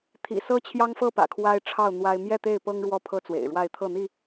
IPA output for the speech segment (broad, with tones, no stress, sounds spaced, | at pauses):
t̪ʰ ḭ˨˩ s ɤ˦ t͡ɕʰ j ɑ˦ ŋ f ɤ˥˨ p ä̰˨˩ kʰ w a˦ ɪ̯ ʈ͡ʂʰ ɑ˥˨ ʊ̯ n̪ w a˦ ɪ̯ m j ɛ˥˨ t̪ e˥˨ ɪ̯ p ɤ˦ ŋ ɻ w ɔ˥˨ pʰ ɤ˦ t͡s w ḛ˨˩ ɪ̯ ɻ w a˥˨ ɪ̯ t̪ʰ ɤ˥˨ n̪ i˥˨